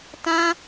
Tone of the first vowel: high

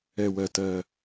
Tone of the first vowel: low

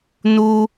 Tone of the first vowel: high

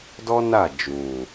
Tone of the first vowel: high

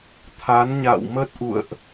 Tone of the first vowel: rising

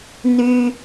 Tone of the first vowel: low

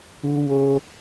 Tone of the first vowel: high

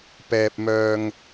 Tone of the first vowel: low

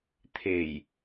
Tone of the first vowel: low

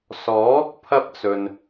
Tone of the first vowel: rising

